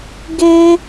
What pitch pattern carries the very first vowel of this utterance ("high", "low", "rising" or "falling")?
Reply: high